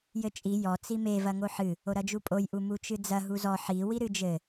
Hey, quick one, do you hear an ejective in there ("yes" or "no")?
yes